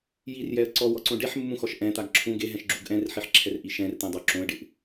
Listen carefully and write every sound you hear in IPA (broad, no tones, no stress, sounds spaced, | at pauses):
j i r j ɛ ə̯ ǀ ɔ w ɔ ǀ õ ɖ e ħ mː ũ x ɔ ʃ ʔ ɛ̃ t̪ a ɡ ǁʰ ũ ɡ e ɦ ɛ̃ ʃ ɡ͡ǁ u ɡ ʔ ɛ̃ r ħ i ħ ǁʰ ɛ r ʔ i ʃ ɛ̃ r t̪ ɛ̃ dˤ o ǁ õ ə̯ ɖ ɪ ʔ